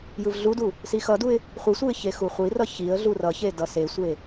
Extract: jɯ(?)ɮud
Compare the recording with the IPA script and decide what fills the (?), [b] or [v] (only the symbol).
v